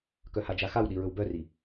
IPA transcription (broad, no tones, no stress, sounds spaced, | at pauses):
k œ h a d͡ʒ a x a w ɗ i ɹ ɵ w b œ r i